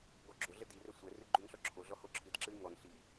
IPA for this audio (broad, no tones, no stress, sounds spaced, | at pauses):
ɡ ɔ ɡ͡ǁ o ɮ ə d i r ɛ sʷ ɛ r ɨ ɡ͡ǃ u n ɬ ɔ ǁʰ o ɮ ɔ h o ǁʰ ɨ d ǁ ɨ i̯ ŋ ɔ n ɬ i